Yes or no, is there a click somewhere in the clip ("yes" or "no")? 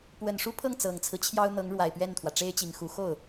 no